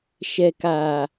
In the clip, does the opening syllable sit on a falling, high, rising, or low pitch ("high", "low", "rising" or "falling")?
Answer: low